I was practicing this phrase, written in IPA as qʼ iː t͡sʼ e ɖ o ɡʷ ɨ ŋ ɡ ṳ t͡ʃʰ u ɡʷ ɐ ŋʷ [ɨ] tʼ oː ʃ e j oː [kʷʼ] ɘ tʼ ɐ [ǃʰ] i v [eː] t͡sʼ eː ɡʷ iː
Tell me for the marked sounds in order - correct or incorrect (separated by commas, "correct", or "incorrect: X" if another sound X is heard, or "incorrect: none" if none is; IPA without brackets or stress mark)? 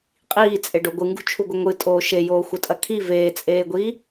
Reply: correct, incorrect: xʷ, incorrect: kʰ, correct